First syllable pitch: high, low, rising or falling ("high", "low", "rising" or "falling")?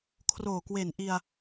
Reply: low